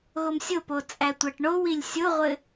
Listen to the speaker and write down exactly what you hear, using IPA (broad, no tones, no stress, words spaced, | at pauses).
ɣomsʲopo t͡sʼætʷæʈɳowilʲ sʲoʁʷɘ